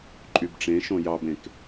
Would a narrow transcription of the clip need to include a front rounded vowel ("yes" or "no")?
yes